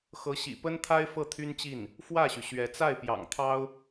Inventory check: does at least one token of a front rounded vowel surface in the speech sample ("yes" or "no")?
yes